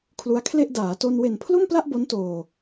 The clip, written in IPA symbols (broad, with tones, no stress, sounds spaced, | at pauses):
kʰ l u˦˥ a̯ kʰ l e˥˩ ʔ d aː˩˦ t o˧ n w e˨˩ n pʰ l o˥˩ m p l a˥˩ ʔ b o˦˥ n t oː˨˩